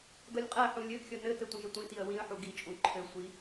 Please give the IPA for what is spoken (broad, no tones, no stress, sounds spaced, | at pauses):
ɡ ʌ lʲ qʼ æ ħ ũ lʲ ɘ ɡ xʲ ʌ n ɘ t ɘ tʷ ə̃ ʒ ə tʷ ĩ t i ə̯ w ĩ ə̯ ħ u ɡ i t͡ʃʼ ũ ǃʰ ɘ sʷ i